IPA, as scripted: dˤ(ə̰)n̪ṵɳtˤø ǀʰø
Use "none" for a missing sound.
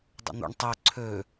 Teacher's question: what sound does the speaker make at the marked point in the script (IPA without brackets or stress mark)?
ə̰